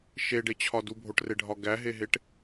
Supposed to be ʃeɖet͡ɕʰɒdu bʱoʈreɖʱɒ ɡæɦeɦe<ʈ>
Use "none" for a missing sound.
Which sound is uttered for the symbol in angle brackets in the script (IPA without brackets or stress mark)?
ʈ